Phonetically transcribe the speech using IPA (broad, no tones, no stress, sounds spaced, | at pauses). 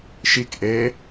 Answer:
ʃ i k ʔ e